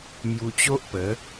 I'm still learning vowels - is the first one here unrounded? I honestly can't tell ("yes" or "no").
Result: no